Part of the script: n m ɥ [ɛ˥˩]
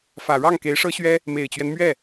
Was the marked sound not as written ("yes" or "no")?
no